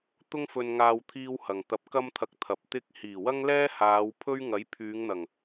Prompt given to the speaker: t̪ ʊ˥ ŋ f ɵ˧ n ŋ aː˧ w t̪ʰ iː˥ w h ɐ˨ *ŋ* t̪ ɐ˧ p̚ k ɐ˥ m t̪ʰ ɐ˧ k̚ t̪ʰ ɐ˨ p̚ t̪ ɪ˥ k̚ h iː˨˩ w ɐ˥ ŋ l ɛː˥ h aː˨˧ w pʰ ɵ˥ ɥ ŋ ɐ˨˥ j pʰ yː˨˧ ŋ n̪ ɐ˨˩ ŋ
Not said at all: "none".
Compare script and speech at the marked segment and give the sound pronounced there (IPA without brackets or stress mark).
ŋ